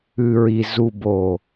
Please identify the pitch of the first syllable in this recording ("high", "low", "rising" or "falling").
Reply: low